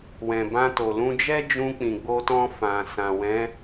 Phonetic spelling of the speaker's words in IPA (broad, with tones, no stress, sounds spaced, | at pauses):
w ɛ̃˨ b ã˧ t o˨ l ũ˧ d͡ʒ ɛ˦ d͡ʒ ũ˧ k͡p ĩ˨ ɡ͡b o˧ t ɔ̃˧ f ã˨ s ã˨ w ɛ̃˨˦